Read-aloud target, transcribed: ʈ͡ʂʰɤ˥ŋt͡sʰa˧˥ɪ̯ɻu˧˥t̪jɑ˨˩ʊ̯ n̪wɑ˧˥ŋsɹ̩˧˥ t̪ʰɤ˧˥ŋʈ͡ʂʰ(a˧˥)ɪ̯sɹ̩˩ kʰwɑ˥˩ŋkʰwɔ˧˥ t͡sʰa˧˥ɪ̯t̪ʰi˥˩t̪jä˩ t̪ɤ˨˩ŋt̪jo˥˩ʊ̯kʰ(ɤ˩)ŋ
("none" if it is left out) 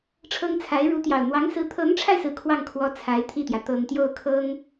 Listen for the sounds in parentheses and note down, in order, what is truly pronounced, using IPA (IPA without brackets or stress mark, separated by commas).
a˧, ɤ˥